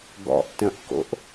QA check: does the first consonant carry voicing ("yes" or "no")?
yes